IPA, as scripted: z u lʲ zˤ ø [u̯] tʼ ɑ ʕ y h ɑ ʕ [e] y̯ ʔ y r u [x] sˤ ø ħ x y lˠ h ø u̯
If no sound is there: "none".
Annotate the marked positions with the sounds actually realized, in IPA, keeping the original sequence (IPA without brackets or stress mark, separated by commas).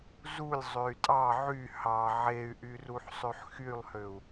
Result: y̯, e, ħ